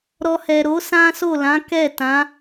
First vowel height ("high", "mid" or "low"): mid